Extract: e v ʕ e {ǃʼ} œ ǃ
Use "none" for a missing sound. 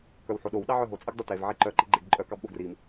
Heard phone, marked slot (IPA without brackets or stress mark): ǃ